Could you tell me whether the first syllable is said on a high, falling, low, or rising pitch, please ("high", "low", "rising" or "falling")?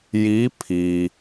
rising